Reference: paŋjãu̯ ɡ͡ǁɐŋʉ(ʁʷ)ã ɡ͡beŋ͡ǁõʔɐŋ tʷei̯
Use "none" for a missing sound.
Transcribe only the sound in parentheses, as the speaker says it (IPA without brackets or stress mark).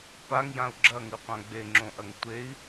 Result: qʷ